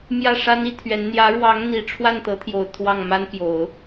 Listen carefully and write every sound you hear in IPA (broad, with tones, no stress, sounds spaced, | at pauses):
m j ä˥˩ ʂ a˥ n i˧˥ t̪ʰ ɥ ɛ˧˥ n n̪ j ä˧˥ ɻ w ɑ˧˥ ŋ n̪ i˨˩ ʈ͡ʂʰ w a˥˩ n t̪ ɤ˧˥ t̪ʰ j o˨˩ ʊ̯ t̪ʰ w ɑ˥˩ ŋ m a˥ n p j o˨˩˦ ʊ̯